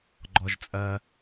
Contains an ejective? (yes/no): yes